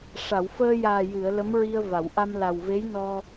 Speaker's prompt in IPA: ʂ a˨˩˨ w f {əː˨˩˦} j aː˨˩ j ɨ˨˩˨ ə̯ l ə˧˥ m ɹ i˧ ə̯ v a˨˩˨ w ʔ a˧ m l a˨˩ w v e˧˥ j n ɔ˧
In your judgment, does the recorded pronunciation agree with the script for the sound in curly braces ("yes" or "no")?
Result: no